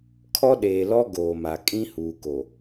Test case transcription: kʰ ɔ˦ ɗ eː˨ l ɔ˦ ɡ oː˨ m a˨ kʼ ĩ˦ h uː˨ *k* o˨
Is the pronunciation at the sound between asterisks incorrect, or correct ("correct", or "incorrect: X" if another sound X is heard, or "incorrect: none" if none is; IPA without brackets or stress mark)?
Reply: correct